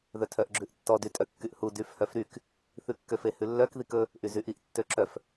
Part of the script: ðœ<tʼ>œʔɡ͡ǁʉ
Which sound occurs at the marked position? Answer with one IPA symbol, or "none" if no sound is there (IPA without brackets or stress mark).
tʰ